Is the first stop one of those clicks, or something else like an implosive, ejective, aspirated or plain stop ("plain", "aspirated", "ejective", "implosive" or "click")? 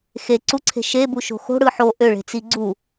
click